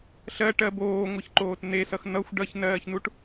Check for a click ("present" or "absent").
present